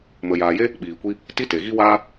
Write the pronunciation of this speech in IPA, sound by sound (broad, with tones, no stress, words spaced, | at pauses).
mə˨jaː˨je˦ | ɓiː˨kʷi˦ | ti˦te˨ɣi˦waː˦